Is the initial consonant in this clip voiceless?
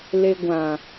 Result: no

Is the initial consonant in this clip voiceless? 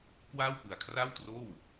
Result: yes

